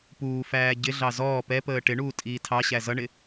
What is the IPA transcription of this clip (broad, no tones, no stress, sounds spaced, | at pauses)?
p uː f æː ɟ ɪ ɮ ɑ z ɔː p ɛ p əː ʈ ɪ ɳ uː tʼ iː tʰ ɑ ɕ æ z ʌ ɳ ɪ